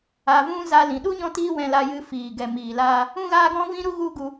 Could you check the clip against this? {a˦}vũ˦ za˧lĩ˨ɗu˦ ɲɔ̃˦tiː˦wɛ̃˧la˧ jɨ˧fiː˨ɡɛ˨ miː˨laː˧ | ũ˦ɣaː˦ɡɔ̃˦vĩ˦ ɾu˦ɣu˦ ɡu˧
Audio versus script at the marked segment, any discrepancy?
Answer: yes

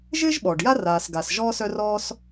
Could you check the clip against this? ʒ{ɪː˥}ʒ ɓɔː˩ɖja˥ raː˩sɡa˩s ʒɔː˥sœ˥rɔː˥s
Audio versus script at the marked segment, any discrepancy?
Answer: no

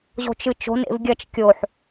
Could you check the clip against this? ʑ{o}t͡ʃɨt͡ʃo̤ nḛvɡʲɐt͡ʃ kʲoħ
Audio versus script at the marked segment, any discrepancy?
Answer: yes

